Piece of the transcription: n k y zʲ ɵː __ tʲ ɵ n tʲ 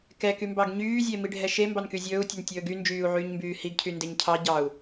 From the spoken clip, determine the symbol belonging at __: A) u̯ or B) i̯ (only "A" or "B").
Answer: A